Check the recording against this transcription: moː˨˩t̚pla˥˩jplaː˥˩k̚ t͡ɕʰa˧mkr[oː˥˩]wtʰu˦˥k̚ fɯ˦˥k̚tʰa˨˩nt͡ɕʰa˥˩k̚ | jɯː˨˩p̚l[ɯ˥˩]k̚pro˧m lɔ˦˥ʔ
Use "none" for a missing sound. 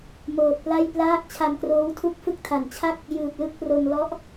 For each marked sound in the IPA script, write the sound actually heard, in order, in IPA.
oː˦˥, ɯ˥˩

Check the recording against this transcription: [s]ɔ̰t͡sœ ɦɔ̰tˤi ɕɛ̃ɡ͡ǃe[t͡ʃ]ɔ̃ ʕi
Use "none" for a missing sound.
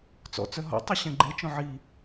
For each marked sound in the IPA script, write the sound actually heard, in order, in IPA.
t͡s, t͡ʃ

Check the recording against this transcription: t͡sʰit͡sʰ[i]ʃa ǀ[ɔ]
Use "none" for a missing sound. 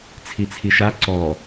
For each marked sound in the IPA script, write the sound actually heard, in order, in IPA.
i, ɔ

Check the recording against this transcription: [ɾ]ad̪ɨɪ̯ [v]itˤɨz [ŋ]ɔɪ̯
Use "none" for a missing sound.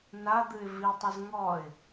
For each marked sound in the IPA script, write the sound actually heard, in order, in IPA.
n, v, ŋ

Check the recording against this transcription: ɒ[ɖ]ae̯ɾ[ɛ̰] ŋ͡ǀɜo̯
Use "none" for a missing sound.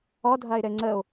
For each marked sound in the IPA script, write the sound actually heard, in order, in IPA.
dʱ, ɛ

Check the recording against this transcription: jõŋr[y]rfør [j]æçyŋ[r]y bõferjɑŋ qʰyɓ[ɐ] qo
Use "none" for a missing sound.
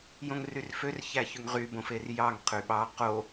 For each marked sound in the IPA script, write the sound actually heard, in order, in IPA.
y, ç, ʁ, ɑ

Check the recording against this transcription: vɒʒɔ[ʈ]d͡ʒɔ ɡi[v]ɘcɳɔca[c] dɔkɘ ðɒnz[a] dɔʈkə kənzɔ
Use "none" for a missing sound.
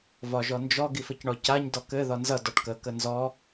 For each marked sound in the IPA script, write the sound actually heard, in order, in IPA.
n, f, ɲ, ʌ

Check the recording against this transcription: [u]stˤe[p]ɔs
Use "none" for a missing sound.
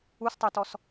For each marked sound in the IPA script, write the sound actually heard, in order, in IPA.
u, t

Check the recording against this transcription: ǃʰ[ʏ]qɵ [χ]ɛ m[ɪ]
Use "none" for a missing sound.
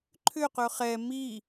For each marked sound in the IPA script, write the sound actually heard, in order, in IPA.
ʏ, χ, i

